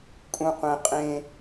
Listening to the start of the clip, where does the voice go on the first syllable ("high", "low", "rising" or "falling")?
low